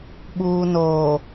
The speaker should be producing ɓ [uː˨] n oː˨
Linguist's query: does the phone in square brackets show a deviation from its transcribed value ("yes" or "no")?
no